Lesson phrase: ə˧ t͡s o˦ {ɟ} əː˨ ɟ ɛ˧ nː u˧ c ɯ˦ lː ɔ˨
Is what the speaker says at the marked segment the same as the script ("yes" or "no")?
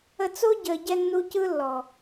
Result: yes